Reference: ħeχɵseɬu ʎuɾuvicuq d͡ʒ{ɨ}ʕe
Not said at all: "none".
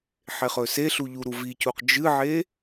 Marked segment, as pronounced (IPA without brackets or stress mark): ɨ